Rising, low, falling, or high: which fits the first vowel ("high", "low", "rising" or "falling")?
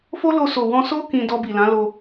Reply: high